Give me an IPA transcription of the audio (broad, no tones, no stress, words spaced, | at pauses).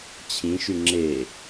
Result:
t͡ɕʰĩʃʉ ŋ͡ǁe